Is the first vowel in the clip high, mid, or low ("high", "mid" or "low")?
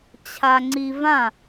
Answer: low